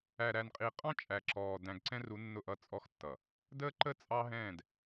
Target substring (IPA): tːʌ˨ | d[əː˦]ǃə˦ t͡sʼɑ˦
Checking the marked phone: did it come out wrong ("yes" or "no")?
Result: no